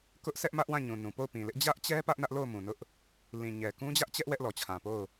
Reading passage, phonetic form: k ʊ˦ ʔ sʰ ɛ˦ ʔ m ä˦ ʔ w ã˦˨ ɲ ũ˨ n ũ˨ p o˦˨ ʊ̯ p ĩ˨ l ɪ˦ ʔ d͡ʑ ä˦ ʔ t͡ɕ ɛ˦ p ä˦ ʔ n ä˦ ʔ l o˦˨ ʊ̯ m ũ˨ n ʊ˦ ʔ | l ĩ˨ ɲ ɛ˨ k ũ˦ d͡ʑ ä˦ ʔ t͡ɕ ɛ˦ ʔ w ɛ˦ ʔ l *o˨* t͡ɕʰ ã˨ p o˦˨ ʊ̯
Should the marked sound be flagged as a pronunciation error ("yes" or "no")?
yes